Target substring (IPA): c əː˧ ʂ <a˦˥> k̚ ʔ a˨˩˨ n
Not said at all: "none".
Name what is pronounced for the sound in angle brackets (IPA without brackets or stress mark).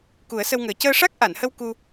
a˦˥